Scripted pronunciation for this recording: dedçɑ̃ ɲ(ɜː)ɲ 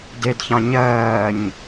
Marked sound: correct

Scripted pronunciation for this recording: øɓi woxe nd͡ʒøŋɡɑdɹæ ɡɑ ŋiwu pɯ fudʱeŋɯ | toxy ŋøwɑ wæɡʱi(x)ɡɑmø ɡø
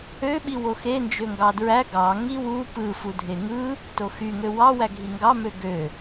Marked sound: incorrect: ŋ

